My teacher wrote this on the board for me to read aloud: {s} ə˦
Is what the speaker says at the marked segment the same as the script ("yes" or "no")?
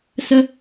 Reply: yes